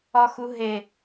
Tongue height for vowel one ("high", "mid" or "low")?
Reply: low